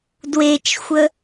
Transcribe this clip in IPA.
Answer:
d w e t͡ʃ xʷ ə

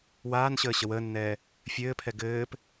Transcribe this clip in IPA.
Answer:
w aː n ɕ əː ɕ ə w əː nː ɛː | fʲ ɘː pʰ ɛ ɡ ɘː p

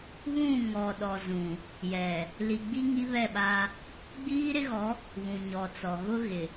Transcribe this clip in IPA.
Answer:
β ũ˦˨ ŋ ɔ˨ ɗ ɔ˨ z ũ˨ | j ɛ˨ | l i˨ ɡ͡b i˦ ŋ i˦ β ɛ˦˨ ɓ a˦ | ɡ͡b iː˦ ɾ ɪ˦ ɣ ɔ˨˦ | β ũ˨ ɲ ɔ˨ t͡s ɔ˨ ɣ ʊ˦ ɣ ɪ˨

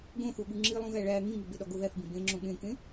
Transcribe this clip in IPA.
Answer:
ɡ õ θ u ɠ u ŋ͡ǁ i lˠ ũ ɣ æ ɭ æ ŋ ĩ ŋ u b e ɗ ɒ ɡ o ð æ θ b ĩ b ẽ ŋ͡ǁ õ ɠ ẽ k ẽ

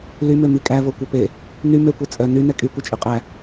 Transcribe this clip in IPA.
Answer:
l y m ø m i kʼ æ v o kʷ œ p e | n y m ø kʷ e t͡sʼ œ n y n ɛ kʼ y kʷ ɛ t͡ʃʼ y qʼ æ

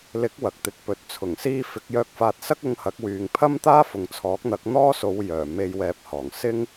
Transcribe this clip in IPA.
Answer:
l ɪ˨˥ k̚ w ɐ˨ k̚ t̪ ɪ˨ k̚ p ɵ˨ t̚ t͡sʰ ʊ˨˩ ŋ s iː˧ f ɪ˨˥ k̚ j œː˧ k̚ f aː˧ t̚ s ɐ˥ k̚ ʊ˧ ŋ h ɐ˨˥ k̚ w yː˨ ŋ pʰ ɐ˥ m t̪ aː˥ f ʊ˨ ŋ t͡sʰ ɔː˨˥ k̚ n̪ ɐ˨˥ k̚ n̪ ɔː˥ s o˨˧ w j œː˨˩ m e˧ j w ɛː˧ p̚ h ɔː˨˩ ŋ s ɪ˥ ŋ

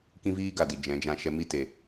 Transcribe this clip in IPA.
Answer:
k ĩ˦ v iː˦ ɡ a˨ d i˨ d͡ʒ ɛ̃˨˦ d͡ʒ ã˧ ʃ ɛ˧ m i˦˨ t e˨

